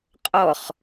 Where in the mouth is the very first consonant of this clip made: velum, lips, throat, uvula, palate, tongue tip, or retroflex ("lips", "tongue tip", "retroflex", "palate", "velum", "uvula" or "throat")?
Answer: uvula